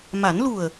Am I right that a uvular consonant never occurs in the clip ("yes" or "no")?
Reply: yes